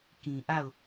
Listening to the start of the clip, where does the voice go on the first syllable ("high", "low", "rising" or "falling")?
low